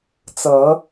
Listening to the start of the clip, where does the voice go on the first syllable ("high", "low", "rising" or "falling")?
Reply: rising